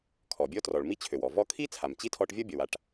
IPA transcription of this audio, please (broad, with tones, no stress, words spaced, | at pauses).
kʰɔ˩bʲɔ˥trɔ˩ɭ mi˥t͡ɕʰø˩wɔ˩ vɔ˥ kʰi˥ t͡sʰa˩mt͡ɕi˥tʰɔ˧ʈvʲɔ˥ bʲɔ˩wa˧ʈ